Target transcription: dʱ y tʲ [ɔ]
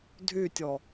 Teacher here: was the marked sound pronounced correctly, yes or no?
yes